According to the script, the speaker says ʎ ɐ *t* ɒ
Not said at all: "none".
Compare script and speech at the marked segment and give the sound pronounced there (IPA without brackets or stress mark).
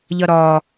ɾ